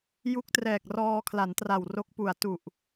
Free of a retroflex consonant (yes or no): yes